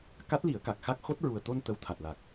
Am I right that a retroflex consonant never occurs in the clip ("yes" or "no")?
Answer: yes